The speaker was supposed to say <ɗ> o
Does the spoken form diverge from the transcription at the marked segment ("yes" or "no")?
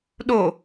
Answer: no